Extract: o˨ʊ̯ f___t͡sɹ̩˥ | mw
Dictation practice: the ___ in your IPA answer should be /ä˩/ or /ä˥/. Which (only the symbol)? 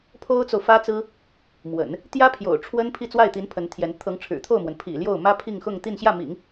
ä˥